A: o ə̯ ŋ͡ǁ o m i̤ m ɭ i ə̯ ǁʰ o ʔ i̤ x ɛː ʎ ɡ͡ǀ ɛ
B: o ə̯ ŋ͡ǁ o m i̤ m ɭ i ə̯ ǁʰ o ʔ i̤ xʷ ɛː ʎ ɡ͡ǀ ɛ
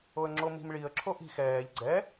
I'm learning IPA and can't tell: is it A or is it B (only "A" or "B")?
A